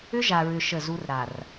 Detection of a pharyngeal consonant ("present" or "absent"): absent